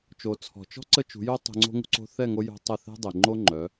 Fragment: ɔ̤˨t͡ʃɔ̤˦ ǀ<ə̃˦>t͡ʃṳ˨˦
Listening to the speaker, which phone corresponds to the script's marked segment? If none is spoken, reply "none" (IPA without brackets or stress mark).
ə˦